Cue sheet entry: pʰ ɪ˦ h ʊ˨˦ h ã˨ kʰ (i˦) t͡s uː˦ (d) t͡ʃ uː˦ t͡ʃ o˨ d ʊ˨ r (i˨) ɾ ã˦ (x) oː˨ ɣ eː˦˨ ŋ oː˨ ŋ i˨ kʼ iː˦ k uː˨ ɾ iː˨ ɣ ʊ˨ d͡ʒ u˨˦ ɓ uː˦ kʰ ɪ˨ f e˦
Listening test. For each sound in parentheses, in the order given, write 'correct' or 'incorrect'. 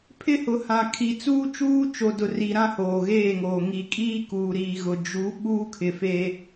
incorrect: i˨, incorrect: none, correct, incorrect: h

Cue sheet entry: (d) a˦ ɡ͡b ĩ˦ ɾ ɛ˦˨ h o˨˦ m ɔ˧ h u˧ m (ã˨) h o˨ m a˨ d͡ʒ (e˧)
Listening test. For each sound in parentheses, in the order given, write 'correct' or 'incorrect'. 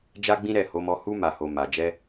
incorrect: d͡ʒ, incorrect: a˨, incorrect: ɛ˧

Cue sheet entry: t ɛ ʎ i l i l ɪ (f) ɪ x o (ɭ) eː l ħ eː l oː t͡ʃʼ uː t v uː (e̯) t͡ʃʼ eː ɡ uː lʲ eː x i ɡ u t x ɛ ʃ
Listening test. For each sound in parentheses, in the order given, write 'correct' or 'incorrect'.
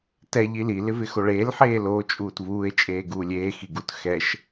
incorrect: v, correct, correct

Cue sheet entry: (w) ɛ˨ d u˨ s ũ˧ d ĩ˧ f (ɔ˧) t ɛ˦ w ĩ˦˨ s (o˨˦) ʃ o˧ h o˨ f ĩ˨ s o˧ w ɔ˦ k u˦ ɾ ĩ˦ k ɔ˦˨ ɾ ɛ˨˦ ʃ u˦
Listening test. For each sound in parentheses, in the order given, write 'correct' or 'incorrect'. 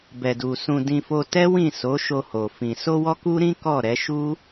incorrect: b, incorrect: o˧, correct

